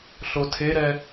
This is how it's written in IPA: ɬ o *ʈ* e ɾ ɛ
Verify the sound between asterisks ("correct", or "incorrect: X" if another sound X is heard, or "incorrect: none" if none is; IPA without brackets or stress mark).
incorrect: tʰ